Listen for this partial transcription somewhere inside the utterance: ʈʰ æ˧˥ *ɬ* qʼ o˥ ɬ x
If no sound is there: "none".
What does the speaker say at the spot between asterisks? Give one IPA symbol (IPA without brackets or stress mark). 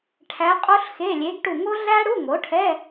none